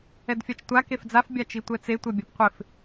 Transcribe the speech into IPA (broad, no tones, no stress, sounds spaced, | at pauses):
ɛ d fʲ a t͡ʃ tʷ a k e f d͡z a f bʲ a t͡ʃ i tʷ ɛ t͡s e tʷ ɛ bʲ a p qʷ ɪ f